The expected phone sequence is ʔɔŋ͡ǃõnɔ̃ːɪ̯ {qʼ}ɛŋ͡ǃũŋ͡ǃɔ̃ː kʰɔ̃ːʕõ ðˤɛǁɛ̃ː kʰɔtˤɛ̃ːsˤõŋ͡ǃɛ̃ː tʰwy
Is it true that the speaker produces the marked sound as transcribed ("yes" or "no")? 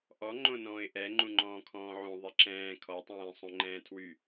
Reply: no